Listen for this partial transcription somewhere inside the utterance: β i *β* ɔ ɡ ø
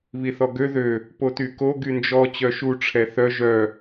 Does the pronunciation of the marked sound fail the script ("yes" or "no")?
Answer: yes